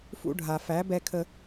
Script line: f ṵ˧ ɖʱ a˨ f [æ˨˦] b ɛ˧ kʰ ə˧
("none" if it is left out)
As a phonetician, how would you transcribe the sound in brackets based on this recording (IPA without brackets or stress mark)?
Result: æ˨˦